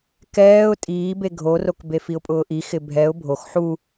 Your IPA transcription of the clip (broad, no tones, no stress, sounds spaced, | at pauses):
k ɛː ʊ̯ tʼ iː b e ɡʱ o r o k b e f i ʊ̯ pʼ ʊː ʔ i x ɪ bʱ ɛ ʊ̯ bʱ o x ħ u